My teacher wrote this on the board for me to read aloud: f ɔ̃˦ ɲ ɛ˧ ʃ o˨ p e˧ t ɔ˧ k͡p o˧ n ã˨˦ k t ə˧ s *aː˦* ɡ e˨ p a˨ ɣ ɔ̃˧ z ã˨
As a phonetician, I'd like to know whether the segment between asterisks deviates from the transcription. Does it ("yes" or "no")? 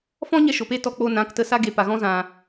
yes